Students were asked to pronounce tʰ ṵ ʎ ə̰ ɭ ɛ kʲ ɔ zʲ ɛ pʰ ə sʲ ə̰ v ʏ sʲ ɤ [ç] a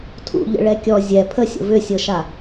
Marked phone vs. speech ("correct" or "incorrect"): incorrect